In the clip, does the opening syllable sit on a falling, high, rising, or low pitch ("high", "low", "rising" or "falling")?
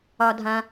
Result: high